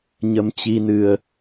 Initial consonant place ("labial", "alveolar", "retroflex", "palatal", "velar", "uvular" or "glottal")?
palatal